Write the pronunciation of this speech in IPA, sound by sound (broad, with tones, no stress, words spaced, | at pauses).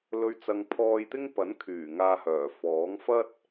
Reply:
lɵ˨ɥt͡sɐ˨ŋ pʰɔː˧jt̪ɪ˥ŋ pɐ˨˥nkʰyː˨˩ ŋaː˧hœː˨˩fɔː˨˥ŋ fɐ˥t̚